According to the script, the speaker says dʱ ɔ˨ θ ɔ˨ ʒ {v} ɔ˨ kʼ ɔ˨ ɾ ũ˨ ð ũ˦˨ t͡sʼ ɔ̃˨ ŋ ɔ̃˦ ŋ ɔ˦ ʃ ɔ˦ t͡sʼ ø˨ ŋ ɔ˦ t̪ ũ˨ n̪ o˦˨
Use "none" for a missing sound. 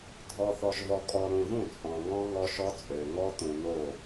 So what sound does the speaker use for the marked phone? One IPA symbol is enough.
v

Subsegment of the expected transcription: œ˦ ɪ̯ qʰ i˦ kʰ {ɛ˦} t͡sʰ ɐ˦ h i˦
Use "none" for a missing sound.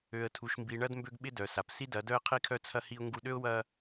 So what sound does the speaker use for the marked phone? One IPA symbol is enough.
œ˦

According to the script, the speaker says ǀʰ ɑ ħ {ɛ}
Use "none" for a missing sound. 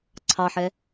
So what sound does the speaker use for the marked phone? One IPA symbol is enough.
ɛ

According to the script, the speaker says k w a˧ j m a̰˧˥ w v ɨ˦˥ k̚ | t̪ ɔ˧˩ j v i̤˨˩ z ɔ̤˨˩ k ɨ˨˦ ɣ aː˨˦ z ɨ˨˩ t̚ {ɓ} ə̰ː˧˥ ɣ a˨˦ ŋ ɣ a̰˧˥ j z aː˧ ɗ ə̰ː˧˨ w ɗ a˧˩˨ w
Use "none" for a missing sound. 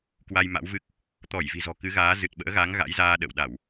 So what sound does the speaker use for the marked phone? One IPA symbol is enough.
ɓ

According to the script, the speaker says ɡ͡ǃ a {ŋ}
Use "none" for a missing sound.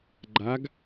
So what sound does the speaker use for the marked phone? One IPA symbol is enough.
ɡ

